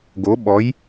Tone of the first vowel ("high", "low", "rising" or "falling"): rising